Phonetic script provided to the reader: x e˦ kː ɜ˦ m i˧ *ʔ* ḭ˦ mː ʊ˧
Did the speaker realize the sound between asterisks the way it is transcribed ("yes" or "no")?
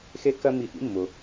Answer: yes